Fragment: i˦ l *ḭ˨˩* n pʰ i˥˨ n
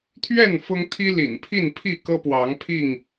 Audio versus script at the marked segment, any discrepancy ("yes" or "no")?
no